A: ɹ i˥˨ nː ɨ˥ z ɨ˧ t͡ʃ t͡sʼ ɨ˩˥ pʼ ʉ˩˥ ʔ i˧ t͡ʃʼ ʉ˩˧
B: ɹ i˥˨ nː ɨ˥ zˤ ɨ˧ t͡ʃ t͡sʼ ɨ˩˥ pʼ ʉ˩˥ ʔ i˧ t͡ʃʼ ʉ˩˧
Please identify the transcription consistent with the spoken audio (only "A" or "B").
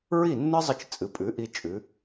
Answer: B